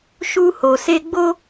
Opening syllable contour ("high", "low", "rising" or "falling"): high